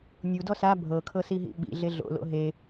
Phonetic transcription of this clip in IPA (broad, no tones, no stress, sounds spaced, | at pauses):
nʲ u d ɔ s a bʱ ɤ kʰ ɤ s i ɦ ḭ ɓ ḭ ɮ e ɮ o̰ l o̰ ɦ e